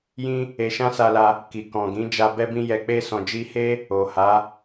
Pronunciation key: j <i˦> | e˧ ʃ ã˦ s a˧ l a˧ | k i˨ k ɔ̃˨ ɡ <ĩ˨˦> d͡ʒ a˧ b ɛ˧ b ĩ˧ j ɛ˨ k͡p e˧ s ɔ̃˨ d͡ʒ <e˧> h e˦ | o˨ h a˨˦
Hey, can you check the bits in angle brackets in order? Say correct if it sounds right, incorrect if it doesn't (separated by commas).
incorrect, correct, incorrect